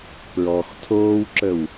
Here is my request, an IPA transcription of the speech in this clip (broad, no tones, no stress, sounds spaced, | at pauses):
p ɹ ɔ x tʰ oː w ǁ ə w